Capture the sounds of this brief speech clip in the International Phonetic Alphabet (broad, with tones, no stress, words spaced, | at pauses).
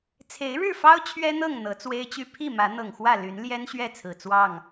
t͡sʰe˨˦ɪ̯ɻɻ̩˥˨fɑ˦ʊ̯ t͡ɕʰɥɛ˦n̪ɤ˥˨ŋ n̪ɤ˨˦t͡swe˦ɪ̯t͡ɕy˥˨ pʰi˥˨ mä˨˦ n̪ɤ˨˩ŋxwä˥˨ ly˨˦n ljɛ˦nɕɥɛ˥˨ t͡sʰɹ̩˨˩t͡swɑ˥˨ŋ